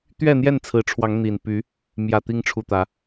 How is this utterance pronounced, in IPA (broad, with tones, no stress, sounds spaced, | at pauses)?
t̪ ɥ ɛ˥˨ n̪ j ɛ˥˨ n t͡sʰ ɹ̩˨˦ ʈ͡ʂʰ w ɑ˨˦ ŋ n̪ i˨˩ n p y˨˦ | m j ä˨˩ t̪ i˨˦ ŋ ʈ͡ʂʰ u˨˩ t̪ ä˨˦